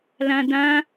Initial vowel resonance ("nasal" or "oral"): nasal